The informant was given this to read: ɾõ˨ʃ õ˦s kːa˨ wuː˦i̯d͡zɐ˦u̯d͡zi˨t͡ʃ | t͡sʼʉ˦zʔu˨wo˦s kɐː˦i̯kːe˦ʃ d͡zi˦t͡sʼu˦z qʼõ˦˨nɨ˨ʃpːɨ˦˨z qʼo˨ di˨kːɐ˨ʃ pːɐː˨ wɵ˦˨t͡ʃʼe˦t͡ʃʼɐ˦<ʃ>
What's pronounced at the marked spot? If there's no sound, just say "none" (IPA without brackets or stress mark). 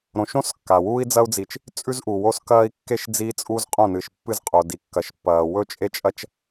t͡ʃ